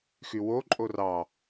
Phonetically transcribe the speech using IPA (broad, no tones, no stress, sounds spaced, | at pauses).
x y w o ǃʼ o r ɑ